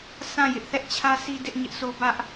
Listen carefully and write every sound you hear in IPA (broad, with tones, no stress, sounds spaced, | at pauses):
sʰ ã˦˨ j ɪ˦ ʔ θ ɛ˦ ʔ t͡ɕʰ ä˦ sʰ i˦ d ɪ˦ ʔ ɲ ɪ˦ ʔ sʰ o˦ b ä˦ ʔ